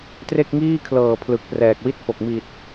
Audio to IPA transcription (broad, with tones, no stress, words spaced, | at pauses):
tre˥˩k̚ŋiː˥˩kʰlɤː˨˩ pʰlɯ˨˩k̚prɛː˨˩k̚wi˥˩t̚fo˨˩k̚ mi˨˩t̚